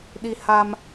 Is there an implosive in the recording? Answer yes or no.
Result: yes